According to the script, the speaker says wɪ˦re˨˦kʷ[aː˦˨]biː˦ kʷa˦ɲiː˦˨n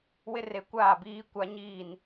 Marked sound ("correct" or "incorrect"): correct